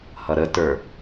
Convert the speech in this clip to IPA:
h ʌ ɾ ə t ə˞

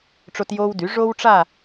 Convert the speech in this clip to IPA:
ʈ͡ʂ o˦ t j oː˦ w d y˩˥ ʐ o˦ w ʈ͡ʂ a˦˨

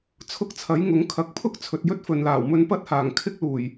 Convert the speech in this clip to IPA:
t͡sʰ ʊ˧ k̚ t͡sʰ ɐ˨˥ j ŋ ʊ˨˥ ŋ kʰ ɐ˨˥ k̚ pʰ ʊ˥ k̚ t͡sʰ ɵ˨ t̚ j ɵ˥ t̚ f ɵ˨ n l aː˨˩ w m ɵ˧ n p ɐ˥ t̚ h aː˨˩ ŋ kʰ ɪ˥ k̚ l uː˨˩ j

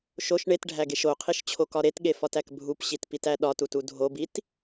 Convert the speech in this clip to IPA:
ʃ o ʃ ɳ e t ɖʱ æ ɡ e ʃ o qʰ i ʃ t͡ɕʰ o k ɒ ɾ e t ɠ e f ɒ t æ k bʱ u p ɕ i t p i t æ ɗ ɒ t u t u dʱ o b i t

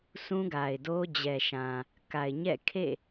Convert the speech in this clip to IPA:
sʰ ũ˦ ɡ a˨ ɪ̯ d o˦ d͡ʑ ɛ˨ ʃ ã˨ | k a˨ ɪ̯ ɲ ɛ̰˦˨ kʰ ḛ˦˨

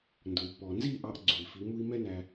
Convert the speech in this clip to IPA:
n d ʊː˨ i̯ pː ɔː˨ n z iː˦˨ ʔ ɑ˧ ʔ ɡ͡ǀ u˨ i̯ f i˨˦ m u˦ i̯ m ɛ˦ n æ˧

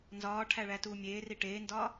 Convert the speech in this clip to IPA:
n z ɒː ʈʰ æ ɭ æ t uː mʲ eː r i ʈ eː n d ɒː

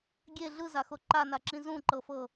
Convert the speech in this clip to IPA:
ɡʲ e ɮ ɯ z a x o ǃ a n a ǁ ĩ z ũ ǃ ɤ f ɤ

